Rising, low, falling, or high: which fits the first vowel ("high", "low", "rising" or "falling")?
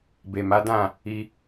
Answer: low